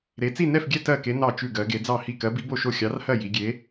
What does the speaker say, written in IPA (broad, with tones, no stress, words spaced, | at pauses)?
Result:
ɾe˧˥ t͡si˥˧nɛ˥˧fɡʲɛ˥˧ tɜ˥˧ke˧˥ nɑ˥˧t͡ʃʉ˥˧ɡɜ˧˥ɡe˧˥ d͡zɑ˥˧hi˥˧ kɜ˧˥bi˧˥bo˥˧ʃo˥˧ xʲɑ˧˥rhɜ˥˧ ji˧˥ ɡʲe˧˥